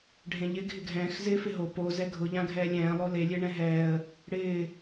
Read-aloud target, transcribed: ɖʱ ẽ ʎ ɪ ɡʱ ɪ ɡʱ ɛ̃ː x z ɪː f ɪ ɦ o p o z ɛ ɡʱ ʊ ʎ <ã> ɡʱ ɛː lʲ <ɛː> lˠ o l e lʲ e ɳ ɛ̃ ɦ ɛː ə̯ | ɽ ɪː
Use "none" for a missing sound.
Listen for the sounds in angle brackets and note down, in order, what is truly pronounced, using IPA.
ã, ɛ̃ː

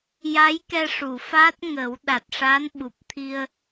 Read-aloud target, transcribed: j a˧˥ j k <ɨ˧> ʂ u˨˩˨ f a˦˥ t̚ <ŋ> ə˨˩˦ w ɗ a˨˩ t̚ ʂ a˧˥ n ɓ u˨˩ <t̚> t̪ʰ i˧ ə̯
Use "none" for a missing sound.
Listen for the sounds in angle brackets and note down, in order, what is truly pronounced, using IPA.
ɛ˧, ŋ, p̚

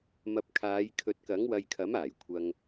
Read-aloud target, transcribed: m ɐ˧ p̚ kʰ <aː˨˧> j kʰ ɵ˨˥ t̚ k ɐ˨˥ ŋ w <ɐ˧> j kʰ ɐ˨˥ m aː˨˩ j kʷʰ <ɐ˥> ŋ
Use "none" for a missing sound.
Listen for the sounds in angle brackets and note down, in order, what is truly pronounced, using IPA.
aː˨˧, ɐ˧, ɐ˧

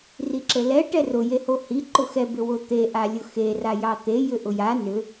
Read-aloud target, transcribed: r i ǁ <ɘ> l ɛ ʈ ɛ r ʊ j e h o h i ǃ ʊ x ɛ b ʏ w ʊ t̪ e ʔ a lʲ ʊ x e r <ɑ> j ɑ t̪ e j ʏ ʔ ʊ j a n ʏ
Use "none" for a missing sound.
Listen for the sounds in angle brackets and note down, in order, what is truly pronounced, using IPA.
ɘ, a

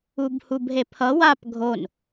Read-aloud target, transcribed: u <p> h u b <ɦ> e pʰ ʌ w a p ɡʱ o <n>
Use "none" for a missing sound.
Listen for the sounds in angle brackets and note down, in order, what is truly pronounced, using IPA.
b, ɦ, n

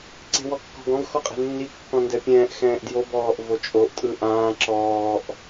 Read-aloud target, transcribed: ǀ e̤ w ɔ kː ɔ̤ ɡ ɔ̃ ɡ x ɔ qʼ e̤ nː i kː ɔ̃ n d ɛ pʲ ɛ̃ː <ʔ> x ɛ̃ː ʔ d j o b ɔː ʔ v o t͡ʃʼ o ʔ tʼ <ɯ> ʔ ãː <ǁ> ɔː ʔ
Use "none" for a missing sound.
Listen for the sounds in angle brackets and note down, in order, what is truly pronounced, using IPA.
ʔ, ɯ, ǁ

